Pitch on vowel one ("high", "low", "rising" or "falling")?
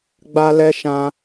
high